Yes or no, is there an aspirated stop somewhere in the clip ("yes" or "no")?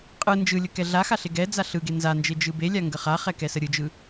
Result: no